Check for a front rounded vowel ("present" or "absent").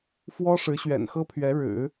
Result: absent